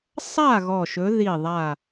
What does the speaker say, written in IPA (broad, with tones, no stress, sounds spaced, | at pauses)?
sˤ a˦˨ ɣ ɔ˦˨ ʃ ɵ˧˥ ð i˦˨ ðˤ a˦˨